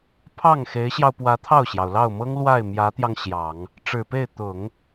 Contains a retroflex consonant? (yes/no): yes